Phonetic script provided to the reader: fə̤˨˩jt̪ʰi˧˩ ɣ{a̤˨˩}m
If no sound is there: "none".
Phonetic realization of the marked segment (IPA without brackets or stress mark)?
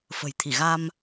a˧